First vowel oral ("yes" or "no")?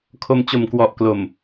yes